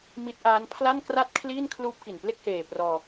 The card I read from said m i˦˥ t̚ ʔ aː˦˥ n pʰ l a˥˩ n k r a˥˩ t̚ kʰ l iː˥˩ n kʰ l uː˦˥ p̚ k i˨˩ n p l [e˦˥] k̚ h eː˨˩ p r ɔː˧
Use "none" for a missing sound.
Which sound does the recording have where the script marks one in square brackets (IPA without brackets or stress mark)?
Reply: e˥˩